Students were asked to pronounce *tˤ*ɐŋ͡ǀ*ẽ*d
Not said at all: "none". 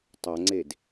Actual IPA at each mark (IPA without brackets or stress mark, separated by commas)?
tˤ, e